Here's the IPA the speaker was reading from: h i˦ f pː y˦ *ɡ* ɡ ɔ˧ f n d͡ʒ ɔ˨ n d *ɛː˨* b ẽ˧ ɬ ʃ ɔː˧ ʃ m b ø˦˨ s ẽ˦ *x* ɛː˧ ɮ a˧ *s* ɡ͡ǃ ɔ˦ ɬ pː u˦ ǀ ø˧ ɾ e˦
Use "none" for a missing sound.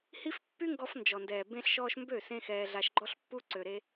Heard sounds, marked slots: ŋ, ɛː˨, x, ʃ

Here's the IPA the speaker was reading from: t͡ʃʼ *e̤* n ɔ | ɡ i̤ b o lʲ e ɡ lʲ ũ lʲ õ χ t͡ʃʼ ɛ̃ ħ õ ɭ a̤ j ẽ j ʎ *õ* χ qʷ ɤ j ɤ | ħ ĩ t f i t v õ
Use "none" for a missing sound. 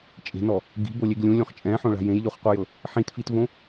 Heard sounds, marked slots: e̤, o

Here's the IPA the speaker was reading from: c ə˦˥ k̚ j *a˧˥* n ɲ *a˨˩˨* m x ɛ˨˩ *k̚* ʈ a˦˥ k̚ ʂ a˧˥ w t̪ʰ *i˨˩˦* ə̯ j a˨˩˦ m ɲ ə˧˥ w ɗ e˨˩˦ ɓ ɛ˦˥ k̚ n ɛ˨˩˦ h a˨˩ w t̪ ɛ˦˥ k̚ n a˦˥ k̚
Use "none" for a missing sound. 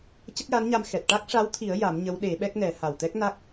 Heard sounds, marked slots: a˧˥, a˧, t̚, i˨˩˦

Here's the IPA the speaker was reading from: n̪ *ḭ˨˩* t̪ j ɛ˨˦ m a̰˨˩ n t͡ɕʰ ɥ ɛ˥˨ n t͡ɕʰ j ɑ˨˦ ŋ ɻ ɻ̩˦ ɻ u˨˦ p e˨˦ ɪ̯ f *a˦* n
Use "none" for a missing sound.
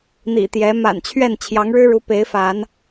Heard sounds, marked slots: ḭ˨˩, a˨˦

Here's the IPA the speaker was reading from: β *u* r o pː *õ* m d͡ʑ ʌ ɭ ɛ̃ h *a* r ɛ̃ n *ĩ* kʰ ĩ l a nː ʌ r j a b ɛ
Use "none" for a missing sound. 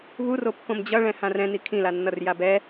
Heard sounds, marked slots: u, õ, ã, i

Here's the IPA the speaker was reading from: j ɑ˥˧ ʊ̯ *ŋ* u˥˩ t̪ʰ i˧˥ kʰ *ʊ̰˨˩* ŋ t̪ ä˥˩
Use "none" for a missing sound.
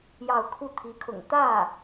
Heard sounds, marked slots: kʰ, ʊ̰˨˩

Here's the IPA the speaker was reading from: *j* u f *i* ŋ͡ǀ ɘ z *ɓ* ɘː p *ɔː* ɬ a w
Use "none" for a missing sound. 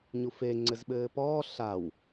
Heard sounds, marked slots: ɲ, e, ɓ, ɔː

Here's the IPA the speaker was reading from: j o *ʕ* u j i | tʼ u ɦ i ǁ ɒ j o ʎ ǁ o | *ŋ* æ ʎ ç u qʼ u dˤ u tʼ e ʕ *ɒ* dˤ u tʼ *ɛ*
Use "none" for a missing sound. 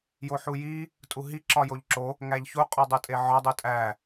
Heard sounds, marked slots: ħ, ŋ, ɒ, æ

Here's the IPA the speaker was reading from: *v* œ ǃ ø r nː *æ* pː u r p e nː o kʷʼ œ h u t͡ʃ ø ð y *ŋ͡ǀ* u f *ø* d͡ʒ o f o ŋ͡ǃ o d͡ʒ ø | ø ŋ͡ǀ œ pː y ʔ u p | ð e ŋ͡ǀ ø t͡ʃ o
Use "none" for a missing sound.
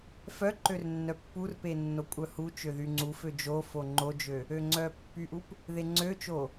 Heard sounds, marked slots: f, œ, ŋ͡ǀ, ø

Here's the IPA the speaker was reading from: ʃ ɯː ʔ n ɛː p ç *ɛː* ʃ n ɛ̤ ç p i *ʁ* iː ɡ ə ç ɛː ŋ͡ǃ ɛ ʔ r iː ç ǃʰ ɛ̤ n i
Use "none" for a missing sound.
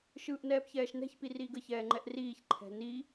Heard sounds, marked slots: ɛː, r

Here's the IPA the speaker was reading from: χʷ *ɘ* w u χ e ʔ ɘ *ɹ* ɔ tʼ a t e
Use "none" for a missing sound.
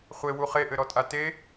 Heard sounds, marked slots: e, ɾ

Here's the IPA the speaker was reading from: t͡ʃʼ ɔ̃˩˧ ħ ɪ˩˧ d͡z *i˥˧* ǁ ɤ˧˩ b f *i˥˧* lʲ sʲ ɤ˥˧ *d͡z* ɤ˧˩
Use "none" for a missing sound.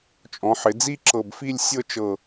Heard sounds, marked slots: i˥˧, i˥˧, t͡ʃ

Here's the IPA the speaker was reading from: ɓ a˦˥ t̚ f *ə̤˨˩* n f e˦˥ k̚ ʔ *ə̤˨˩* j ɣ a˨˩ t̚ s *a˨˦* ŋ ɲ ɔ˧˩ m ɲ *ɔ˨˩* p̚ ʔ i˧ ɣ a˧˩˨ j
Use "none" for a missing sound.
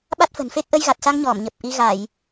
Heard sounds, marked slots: ə̤˨˩, ə˧, a˧, ə˨˩

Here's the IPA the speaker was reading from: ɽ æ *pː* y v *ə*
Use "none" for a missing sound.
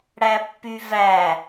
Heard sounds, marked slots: pː, æ

